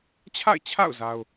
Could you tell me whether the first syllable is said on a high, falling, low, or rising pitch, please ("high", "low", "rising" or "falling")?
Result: falling